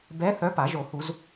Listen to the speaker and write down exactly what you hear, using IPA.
b ɛ˧˥ θ œ˧˥ p a˨˩˦ ʒ o˨˩˦ h u˨˩˦ z

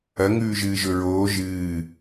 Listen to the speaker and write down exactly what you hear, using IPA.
ɐ ŋ ʉː ʒ ɨː ʒ ɵ ɹ oː ʒ ɨː

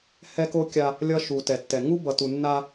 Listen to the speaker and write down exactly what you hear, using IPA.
h ɛ˦ k o˦ kʲ a˦ | lʲ ʌ˦ ʃ u˨ t ɛ˨ tː ɛ˨ ŋ u˦ b ʌ˨ t u˨ nː a˦

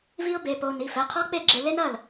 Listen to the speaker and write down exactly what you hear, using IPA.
v i˦˥ ʊ̯ b e˩˧˩ p o˧ n i˩˧˩ f ɛ˩˧˩ qʰ ɔ˦˥ k͡p e˥˩ ɡ͡ǁ e˧ l e˦˥ n ɐ˥˩ l

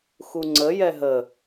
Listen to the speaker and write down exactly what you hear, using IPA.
x u ŋ͡ǀ ə j ɛ ɦ ə

